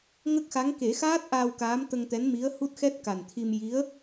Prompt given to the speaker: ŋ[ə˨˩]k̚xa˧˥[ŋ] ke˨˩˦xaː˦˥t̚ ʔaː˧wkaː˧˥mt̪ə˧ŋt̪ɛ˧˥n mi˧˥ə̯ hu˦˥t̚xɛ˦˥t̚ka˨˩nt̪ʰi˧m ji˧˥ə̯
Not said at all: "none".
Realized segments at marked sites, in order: ə˦˥, ŋ

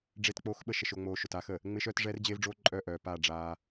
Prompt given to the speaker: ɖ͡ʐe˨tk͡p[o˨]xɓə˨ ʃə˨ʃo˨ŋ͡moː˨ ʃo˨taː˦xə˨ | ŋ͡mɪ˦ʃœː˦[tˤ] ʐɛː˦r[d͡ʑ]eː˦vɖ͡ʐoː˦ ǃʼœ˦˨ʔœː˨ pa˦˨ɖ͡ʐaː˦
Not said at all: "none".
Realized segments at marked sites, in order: o˨, t, d͡ʑ

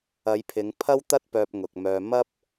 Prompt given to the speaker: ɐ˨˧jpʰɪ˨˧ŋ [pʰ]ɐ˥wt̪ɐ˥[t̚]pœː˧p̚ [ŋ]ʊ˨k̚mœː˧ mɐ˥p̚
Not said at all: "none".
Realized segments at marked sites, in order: pʰ, t̚, ŋ

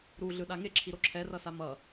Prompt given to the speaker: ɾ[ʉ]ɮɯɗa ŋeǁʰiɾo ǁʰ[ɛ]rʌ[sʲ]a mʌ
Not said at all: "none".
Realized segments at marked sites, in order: u, ɛ, s

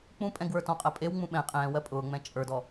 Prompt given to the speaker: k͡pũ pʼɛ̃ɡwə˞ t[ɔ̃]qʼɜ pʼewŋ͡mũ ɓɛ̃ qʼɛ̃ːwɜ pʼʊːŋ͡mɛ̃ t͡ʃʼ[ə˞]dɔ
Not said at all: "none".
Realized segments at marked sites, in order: ɔ̃, ə˞

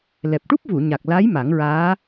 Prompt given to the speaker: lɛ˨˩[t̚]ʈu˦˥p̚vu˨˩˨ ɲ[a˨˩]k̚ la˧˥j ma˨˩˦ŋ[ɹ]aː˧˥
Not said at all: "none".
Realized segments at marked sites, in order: p̚, a˨˩, ɹ

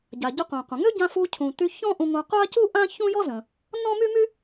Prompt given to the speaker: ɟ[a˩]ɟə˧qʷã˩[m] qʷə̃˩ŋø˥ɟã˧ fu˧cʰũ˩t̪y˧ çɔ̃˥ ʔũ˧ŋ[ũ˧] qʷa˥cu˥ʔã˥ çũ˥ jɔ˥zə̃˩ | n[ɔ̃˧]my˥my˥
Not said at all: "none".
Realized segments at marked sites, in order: a˩, none, ũ˧, ɔ̃˥

